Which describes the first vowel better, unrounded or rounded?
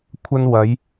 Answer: unrounded